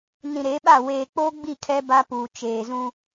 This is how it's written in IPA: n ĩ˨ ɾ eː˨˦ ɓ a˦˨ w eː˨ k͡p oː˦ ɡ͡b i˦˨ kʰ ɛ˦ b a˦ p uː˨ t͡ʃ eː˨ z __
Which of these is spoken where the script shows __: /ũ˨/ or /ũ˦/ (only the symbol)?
ũ˦